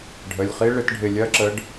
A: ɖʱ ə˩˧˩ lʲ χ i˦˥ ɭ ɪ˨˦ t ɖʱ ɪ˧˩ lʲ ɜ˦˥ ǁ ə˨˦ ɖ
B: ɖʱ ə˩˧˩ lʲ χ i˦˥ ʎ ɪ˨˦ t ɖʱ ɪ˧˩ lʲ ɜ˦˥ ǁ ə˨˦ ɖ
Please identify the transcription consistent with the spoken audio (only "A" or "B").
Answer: A